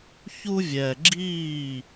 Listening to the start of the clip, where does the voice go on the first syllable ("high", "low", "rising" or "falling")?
high